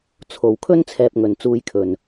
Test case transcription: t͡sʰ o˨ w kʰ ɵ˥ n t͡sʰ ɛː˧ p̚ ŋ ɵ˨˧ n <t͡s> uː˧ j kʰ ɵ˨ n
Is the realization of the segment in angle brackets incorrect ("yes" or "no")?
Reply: no